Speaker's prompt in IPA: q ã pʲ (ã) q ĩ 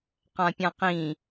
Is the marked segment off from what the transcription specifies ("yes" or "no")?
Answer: no